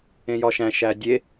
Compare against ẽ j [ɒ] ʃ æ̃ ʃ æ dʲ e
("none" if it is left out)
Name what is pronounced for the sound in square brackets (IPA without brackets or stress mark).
ɒ